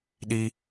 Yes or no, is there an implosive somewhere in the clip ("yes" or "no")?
yes